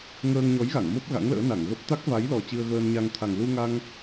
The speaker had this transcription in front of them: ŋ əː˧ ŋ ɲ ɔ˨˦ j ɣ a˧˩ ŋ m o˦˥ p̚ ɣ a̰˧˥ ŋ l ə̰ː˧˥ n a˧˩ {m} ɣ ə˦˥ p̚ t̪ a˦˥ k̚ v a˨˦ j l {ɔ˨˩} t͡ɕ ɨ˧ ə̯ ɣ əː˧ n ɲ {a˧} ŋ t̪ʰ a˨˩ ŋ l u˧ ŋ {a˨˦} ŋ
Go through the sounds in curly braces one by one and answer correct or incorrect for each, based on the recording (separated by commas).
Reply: incorrect, correct, correct, incorrect